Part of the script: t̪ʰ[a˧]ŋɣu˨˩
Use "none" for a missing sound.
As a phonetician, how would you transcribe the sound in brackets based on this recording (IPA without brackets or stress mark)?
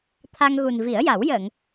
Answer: a˧